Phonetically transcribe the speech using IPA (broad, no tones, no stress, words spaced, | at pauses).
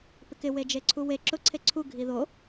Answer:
pɪkɪ wed͡ʒeǀʰuwe ǁʊ ǀʰeǀʰu ɡʱiðo